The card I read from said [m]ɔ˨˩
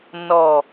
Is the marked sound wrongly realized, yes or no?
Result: yes